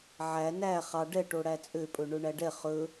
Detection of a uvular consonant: present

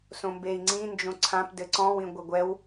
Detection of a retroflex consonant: absent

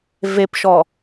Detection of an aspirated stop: absent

